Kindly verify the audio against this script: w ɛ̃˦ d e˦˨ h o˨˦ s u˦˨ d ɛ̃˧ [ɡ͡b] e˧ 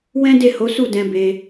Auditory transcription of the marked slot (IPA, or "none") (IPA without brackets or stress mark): b